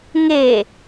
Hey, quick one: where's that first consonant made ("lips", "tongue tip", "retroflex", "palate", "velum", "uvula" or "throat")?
velum